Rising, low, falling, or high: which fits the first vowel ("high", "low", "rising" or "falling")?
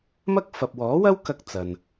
high